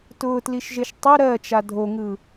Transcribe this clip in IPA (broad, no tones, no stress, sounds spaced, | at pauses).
t ʊː t l i ʃ ʒ e ʃ tˤ ɘ ɾ ɜ t͡ʃ a dʱ o ŋ ɯ